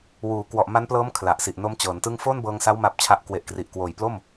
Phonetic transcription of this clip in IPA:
w uː˩˦ k w ɔ˨˩ ʔ m a˦˥ n p l ɤː˦˥ m kʰ l a˨˩ ʔ s i˨˩ ʔ n o˦˥ m t͡ɕ ɤː˩˦ n t ɯ˥˩ ŋ f oː˥˩ n b ɤː˧ ŋ s a˦˥ w m a˦˥ p̚ t͡ɕʰ a˦˥ ʔ k w e˨˩ ʔ k r i˨˩ ʔ k w oː˨˩ j p l o˥˩ m

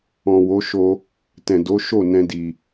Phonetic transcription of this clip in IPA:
ɔ̃˨ w o˨˦ ʃ o˧ | t ɛ̃˨ d o˨˦ ʃ o˦˨ n ɛ̃˧ d i˨

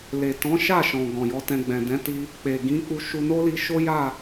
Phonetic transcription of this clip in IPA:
l e˨ t ɔ̃˨˦ ʃ a˦˨ ʃ ɔ̃˨ ɡ ɔ̃˨ j ɔ˨˦ t ɛ̃˧ ɡ͡b ɛ̃˨ d ɛ̃˨˦ t i˧ | k͡p e˨ ɡ ĩ˨˦ k͡p u˧ ʃ u˧ n o˦ l i˧ ʃ o˦ j a˦˨

